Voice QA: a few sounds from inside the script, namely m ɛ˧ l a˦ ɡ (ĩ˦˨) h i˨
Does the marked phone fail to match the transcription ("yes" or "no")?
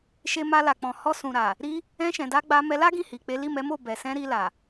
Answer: no